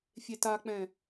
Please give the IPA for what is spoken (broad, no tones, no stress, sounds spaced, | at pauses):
fʲ e t a k͡p ɛ̃